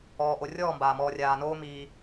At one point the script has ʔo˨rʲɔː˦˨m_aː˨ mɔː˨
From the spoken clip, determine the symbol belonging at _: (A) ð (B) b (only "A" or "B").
B